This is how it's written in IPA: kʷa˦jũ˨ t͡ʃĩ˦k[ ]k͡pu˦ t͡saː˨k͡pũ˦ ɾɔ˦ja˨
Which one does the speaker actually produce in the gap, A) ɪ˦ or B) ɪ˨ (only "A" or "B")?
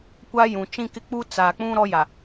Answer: A